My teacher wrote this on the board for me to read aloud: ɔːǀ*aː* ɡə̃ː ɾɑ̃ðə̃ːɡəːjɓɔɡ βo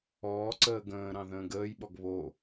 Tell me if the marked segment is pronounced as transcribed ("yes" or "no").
no